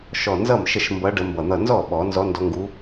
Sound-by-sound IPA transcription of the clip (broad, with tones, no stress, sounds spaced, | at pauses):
ʃ ɔ˧˩ n z ʌ˥˩ m ʃ ə˥˩ ʃ m b ʌ˧˥ ɖ ə˧˥ m b ʌ˧˩ n̪ ʌ˥˩ n z ɔ˥˩ ɓ ɔ˨˩˦ n z ɔ˧˥ n d ɔ˧˥ ŋ ɡ u˧˥